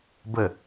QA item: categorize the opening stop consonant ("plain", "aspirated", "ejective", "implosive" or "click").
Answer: plain